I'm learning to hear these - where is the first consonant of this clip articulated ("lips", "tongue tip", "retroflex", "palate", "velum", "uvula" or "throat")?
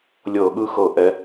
tongue tip